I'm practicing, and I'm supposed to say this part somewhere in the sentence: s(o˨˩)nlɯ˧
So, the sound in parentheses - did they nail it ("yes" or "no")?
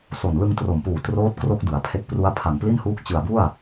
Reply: yes